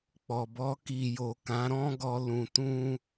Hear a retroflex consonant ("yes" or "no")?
no